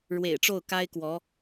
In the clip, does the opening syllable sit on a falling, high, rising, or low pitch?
low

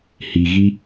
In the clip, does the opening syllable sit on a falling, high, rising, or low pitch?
low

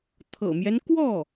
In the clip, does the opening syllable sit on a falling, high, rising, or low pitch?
low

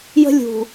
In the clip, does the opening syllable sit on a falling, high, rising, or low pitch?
high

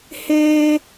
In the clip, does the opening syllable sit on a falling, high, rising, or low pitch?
high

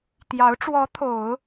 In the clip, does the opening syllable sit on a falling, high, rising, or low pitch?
rising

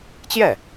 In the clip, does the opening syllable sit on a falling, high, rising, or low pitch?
falling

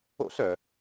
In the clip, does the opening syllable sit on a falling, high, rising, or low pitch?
high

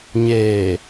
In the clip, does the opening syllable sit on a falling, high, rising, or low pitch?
low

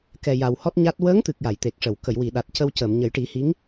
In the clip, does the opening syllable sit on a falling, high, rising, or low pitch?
low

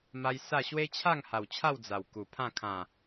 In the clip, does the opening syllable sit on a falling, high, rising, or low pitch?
high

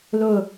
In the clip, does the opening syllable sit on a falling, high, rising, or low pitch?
falling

